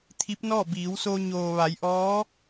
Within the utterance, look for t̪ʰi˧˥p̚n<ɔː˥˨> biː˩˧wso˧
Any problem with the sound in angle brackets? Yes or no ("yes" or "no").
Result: no